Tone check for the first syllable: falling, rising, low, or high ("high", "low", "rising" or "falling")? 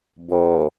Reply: low